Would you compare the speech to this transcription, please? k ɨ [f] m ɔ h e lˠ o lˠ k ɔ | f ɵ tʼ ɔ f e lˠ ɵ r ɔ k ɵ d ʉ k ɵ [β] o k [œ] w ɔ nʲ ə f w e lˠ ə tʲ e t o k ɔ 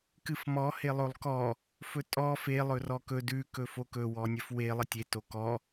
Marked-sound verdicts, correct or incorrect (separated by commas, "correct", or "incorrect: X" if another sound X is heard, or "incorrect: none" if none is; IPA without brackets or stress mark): correct, incorrect: f, incorrect: ɵ